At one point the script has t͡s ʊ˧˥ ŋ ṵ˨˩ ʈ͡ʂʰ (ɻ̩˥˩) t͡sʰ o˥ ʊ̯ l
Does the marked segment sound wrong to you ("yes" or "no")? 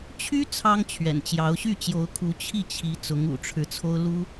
yes